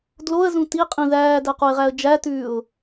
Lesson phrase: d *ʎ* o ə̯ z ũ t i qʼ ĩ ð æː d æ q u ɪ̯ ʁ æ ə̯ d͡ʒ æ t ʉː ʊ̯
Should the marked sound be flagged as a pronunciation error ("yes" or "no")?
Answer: yes